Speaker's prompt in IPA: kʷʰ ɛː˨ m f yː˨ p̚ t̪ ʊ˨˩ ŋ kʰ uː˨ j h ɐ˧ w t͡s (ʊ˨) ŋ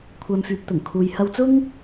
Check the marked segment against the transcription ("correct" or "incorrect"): incorrect